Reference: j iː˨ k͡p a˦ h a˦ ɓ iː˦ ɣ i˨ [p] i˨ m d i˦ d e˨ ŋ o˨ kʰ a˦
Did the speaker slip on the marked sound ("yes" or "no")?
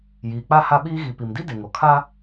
no